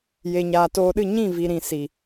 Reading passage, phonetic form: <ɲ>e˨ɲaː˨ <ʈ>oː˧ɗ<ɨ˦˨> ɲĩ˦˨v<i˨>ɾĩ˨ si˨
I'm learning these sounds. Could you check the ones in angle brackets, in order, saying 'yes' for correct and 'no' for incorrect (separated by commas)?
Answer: no, no, yes, yes